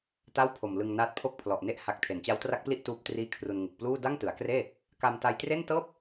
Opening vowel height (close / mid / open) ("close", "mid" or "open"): open